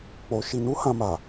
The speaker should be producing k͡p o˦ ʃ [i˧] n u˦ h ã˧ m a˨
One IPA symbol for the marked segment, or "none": i˧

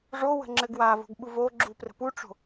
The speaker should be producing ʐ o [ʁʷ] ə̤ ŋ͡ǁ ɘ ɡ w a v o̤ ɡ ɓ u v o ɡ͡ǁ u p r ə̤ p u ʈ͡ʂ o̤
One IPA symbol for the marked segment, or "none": w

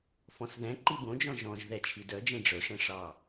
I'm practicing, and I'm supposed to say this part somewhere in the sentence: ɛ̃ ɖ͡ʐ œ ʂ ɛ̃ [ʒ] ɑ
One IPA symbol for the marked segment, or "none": ʂ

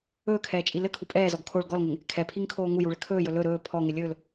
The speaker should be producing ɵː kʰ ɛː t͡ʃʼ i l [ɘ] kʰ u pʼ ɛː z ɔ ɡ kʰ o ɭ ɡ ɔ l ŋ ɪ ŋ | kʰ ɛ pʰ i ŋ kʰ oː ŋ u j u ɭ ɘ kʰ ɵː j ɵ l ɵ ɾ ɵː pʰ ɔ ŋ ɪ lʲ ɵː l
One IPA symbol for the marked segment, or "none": ɘ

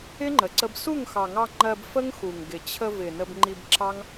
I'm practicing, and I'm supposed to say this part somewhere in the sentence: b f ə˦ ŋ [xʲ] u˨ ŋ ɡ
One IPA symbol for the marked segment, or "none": x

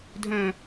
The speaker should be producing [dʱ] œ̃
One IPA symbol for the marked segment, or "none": dʱ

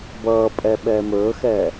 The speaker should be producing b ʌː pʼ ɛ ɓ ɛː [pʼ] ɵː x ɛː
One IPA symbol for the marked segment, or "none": m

